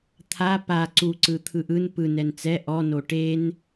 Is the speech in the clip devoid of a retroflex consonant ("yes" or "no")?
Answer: no